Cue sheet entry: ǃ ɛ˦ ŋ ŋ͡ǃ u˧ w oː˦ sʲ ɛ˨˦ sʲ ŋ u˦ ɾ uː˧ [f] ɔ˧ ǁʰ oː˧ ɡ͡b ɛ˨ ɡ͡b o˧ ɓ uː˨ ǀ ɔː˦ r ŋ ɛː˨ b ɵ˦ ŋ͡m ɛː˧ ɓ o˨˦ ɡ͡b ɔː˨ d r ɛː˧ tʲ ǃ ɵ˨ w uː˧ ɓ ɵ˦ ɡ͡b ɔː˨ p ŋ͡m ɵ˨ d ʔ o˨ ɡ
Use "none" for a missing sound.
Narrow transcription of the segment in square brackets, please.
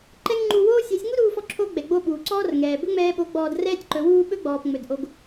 f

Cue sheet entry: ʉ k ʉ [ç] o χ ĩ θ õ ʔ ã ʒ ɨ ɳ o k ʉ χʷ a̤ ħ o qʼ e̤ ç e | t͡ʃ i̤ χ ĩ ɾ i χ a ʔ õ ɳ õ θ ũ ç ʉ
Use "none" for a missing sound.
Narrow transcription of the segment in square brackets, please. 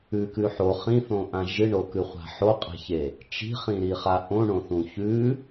ħ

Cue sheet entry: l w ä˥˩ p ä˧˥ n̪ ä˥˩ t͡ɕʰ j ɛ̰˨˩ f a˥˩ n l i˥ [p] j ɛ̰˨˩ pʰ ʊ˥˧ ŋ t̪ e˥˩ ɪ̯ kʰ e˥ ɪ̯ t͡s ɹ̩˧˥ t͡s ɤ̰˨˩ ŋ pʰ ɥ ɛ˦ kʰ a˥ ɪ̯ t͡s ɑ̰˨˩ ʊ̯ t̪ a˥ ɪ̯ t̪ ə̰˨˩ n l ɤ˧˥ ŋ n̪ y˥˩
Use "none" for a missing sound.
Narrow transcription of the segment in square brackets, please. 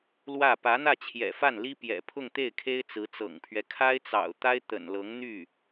p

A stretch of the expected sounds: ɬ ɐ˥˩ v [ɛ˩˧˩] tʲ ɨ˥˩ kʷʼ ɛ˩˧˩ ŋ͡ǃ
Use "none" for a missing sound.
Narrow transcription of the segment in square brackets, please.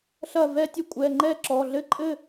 ɛ˥˧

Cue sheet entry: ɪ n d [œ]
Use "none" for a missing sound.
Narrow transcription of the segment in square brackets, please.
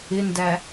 æ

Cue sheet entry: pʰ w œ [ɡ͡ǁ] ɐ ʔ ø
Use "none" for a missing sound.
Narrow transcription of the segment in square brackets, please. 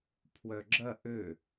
ɡ͡ǁ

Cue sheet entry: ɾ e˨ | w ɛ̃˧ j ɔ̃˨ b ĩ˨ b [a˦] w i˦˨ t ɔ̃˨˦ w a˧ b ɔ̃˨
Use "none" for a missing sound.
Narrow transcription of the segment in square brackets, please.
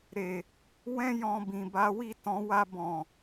a˨˦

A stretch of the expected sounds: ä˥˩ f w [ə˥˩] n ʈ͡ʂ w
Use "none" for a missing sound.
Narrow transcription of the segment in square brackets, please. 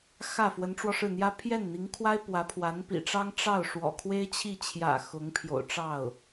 ə˧˥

